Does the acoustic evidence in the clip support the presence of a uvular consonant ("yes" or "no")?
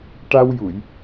no